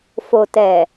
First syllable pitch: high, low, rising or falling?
low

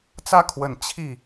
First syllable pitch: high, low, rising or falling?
high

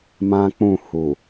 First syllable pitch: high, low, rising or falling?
high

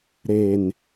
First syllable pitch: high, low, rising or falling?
low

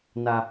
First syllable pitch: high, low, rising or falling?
low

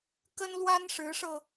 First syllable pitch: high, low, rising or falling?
high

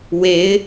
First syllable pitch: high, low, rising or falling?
rising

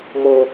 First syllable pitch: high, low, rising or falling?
high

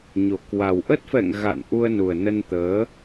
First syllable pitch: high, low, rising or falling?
low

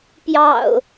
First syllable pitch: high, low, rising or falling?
low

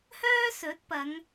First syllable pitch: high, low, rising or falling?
high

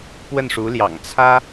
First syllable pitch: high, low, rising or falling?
falling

